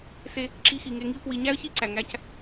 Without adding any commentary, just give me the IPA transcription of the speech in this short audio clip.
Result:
s e˧ | ǁ i˧ x i˩ ŋ e˧ ŋ i˥ ʊ̯ k w i˧ ɲ æ˥ ə̯ ç i˥ ǀ æ˩ ŋ æ˧ c

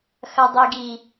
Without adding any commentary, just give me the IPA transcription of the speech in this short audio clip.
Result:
x ɐ dˤ i ɡ i

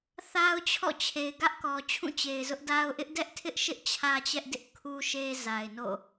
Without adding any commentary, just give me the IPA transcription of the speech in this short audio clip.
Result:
θ a˦ ʊ̯ t͡ɕʰ ɔ̰˦˨ t͡ɕʰ e˨ ɪ̯ ɡ ä˦ ʔ k ɔ˨ t͡ɕʰ ũ˦˨ t͡ɕ e˨ ɪ̯ z ʊ˦ ʔ d a˦ ʊ̯ ʔ ɪ˦ ʔ d ɛ˦ ʔ tʰ ɪ˦ ʔ ʃ ɪ˦ ʔ t͡ɕʰ ä˦ t͡ɕ ɛ˦ ʔ d ɪ˦ ʔ kʰ u˦ ʃ e˦ z a˨ ɪ̯ n o̰˦˨

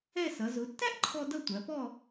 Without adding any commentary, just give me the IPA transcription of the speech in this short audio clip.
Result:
ɛ˥˧ s ʌ˩˧ z ʊ˩˧ tː æ˥ ʔ ǃʰ ɔ˧ d ʌ˥˧ tʷ æ˩˧ p ɔ˥˧

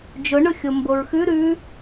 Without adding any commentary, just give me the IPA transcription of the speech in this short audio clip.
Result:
d͡ʒ ʊ ɳ ʊ xʲ o m b o ɹ x ʉ ɾ ʉ

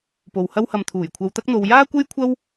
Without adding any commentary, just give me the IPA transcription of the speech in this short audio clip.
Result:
p o˨ w h ɐ˥ w h ɐ˧ m t̪ʰ uː˨˩ j kʷʰ ɐ˧ w t̪ ɐ˥ k̚ n̪ o˧ w j aː˥ kʷ e˥ j kʷʰ ɐ˥ w

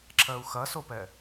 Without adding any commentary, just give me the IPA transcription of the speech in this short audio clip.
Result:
ǁ ɜ u̯ x ɐ s o p ɛ

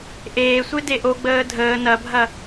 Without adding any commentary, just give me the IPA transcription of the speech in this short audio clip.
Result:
ʔ eː sʷ e d e ʔ o ɡ͡b əː dʱ əː n ɐ bʱ ɐ

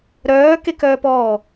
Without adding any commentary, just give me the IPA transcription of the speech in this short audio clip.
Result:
ɾ œː k e k œː p ɔː

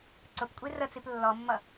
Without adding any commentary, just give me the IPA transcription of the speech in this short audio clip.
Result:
ǀ ʊ p kʷʼ i r ə t͡s i p lː ɔ mː ʌ

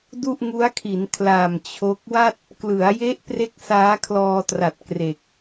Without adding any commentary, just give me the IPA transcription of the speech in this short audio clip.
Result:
d u˥˩ ʔ ŋ u˦˥ a̯ kʰ i˩˦ n kʰ l a˨˩ m t͡ɕʰ o˦˥ k̚ w a˥˩ t̚ | k l ɯ˩˦ a̯ j e˦˥ ʔ p r e˥˩ k̚ s aː˦˥ kʰ l ɔː˧ t r a˨˩ t̚ k r e˨˩ k̚

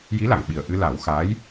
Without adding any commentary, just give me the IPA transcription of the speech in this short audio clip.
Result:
j i˧˥ l a˨˩˨ ŋ ɓ i˨˩ ə̯ ʔ ɨ˧ l a˨˩˦ w x a˧˥ j

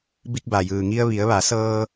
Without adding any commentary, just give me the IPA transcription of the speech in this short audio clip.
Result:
b i˧ k̚ b a˩ j ɯː˩ ŋ i˧ ə̯ ʋ i˩˧ ə̯ ʋ a˩˧ s ɤː˧

